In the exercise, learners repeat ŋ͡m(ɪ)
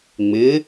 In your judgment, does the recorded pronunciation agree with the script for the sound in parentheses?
yes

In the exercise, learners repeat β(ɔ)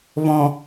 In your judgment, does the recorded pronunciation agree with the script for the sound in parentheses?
no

